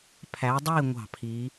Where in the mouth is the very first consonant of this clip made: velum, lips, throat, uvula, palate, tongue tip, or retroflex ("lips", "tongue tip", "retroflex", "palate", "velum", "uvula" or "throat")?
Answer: lips